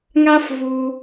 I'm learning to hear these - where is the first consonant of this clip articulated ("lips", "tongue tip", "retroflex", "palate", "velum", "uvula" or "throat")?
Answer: velum